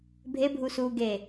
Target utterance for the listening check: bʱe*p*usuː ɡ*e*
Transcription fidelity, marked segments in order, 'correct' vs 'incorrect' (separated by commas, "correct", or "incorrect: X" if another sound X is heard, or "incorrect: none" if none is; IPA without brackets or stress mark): incorrect: bʱ, correct